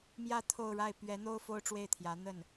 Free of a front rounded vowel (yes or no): yes